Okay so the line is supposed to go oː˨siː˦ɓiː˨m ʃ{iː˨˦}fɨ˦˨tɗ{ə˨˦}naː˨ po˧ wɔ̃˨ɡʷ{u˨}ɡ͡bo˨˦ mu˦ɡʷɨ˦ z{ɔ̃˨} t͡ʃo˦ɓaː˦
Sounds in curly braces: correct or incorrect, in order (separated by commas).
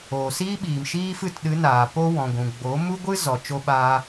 incorrect, incorrect, incorrect, incorrect